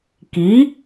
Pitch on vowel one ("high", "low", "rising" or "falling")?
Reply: rising